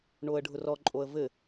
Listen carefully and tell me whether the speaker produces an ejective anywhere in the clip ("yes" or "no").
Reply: yes